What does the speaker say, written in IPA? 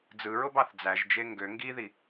d͡z ɯ ɹ o b ɑ θ d͡z æ ʒ d͡ʒ e ŋ ɡ ø ŋ ɡ i ð i

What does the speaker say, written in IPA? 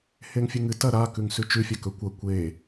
h e ŋ fʲ u ŋ ɨ t ɐ ɾ a k ʉ ŋ s ʉ t͡ʃ ʉ fʲ ɐ k ɵ kʷ ɐ kʷ e

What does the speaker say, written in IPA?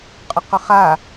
qʼ ʉ q ɵ χ a

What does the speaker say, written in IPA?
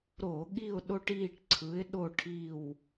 ɾ o˧˩˧ ɠ i˦˨ ʊ̯ ɗ o˦ ʈ iː˦˨ ʈ ǀʰ ɯ˨˥ ɪ̯ ɗ o˦˨ ʈʰ i˦˨ w

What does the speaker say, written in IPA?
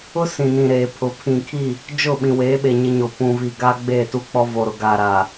ʊ˦ s ĩ˨ n ĩ˨ ɾ eː˨ pʰ ʊ˨˦ pʰ ĩ˨ kʰ i˦˨ | d͡ʒ ʊ˦˨ ɓ ĩ˨ w eː˨˦ ɓ e˨ ɲ ɪ˦ ɲ o˨ p ũ˨ v i˨ ɡ aː˦ ɡ͡b eː˦˨ t u˦ k͡p ɔ˦ v o˨ ɾ ʊ˨ ɡ aː˨ ɾ aː˨

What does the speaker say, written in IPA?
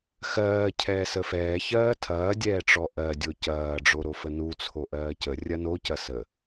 x ɜː cʰ ɛː s ə f ɛː ç ɜː tʰ ɐː dʲ ɛː ʈ͡ʂ ɔ ʔ ɜ dʲ o c ɐː ɖ͡ʐ o ɾ o f ə n u t͡sʰ o ʔ ɜː c ə rʲ ɐ n o c ɐ s ə

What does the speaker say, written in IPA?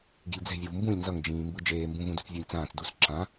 ɡ i̤ lʲ d͡z ɛ̤ vʲ u v m b ũ lʲ n z ʌ ŋ d͡ʒ ĩː m b ɯ d͡ʒ eː m b ũ v ũ d u t͡s vʲ o lʲ t͡s ãː t͡s d u s ǁ ã

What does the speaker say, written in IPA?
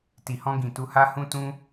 t i˨ h ɔ̃˧ ɡ ĩ˨ t u˧ h a˦ h ũ˦ t ũ˦

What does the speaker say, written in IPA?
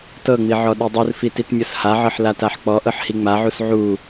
t ɤ ŋ͡m i ʕ ɔ ɗ i dˤ u r f i t i t mʲ ɤ s h a ʕ ɤ ħ l a t a ħ k͡p ɔ ʔ ɤ ħ h i ŋ͡m a ʕ u s ʕ u

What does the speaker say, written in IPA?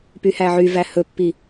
p y h æ ʕ y v æ h ɵ pː i

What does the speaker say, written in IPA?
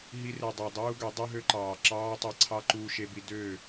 ɦ i˧ r e˨ dˤ ɑ˨ dˤ uː˦ ɡ ø˨˦ dˤ y˦ ɦ ø˦ ǃ ɑː˨ ǁ ɑː˦ tˤ e˧ ǀʰ ɑ˦ ǃ uː˧ ʃ e˧ b i˧ d ø˦˨

